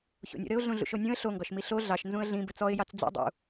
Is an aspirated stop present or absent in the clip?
absent